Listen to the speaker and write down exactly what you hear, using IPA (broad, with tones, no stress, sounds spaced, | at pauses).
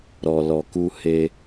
ɾ ɔ˨ l ɔ˨ k u˧ h e˧